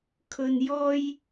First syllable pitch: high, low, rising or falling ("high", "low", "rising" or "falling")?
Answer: high